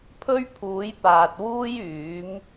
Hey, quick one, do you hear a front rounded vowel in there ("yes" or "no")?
yes